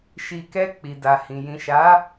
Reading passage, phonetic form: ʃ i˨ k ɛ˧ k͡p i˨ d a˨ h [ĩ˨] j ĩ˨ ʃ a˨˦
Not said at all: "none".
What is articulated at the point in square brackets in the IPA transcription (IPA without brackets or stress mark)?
ĩ˨